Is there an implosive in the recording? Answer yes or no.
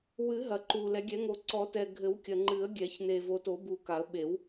yes